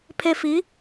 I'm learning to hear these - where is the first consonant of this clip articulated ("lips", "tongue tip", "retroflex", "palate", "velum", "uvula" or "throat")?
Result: lips